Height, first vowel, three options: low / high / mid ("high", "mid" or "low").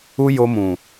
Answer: high